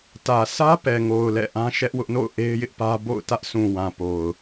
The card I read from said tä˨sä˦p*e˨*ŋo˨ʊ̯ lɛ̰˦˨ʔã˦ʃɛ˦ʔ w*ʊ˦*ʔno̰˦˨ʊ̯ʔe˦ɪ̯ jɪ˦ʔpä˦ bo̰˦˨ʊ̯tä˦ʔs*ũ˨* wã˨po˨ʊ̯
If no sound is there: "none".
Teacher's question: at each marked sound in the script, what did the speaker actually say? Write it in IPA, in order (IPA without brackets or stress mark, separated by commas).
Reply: ɛ˨, ʊ˦, ũ˨